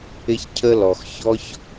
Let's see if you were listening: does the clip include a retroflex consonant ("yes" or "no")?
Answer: no